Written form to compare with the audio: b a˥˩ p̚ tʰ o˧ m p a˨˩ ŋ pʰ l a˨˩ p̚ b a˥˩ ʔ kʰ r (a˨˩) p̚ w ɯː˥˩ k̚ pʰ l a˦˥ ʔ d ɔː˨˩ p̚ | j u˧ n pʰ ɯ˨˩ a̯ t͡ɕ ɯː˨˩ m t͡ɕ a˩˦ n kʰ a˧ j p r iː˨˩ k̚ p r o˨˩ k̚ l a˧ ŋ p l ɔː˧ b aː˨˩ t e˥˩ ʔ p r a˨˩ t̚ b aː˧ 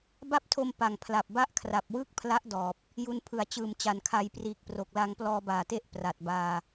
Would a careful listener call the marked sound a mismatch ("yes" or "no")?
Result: no